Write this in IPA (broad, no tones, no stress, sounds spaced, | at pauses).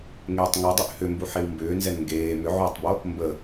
ŋ eː tˤ ŋ o dˤ ʏ ʔ h ʏ m b u ħ e w m b ʏː n z ɛ n ŋ ɡ eː m ʏ ʕ oː tˤ b o | m b ə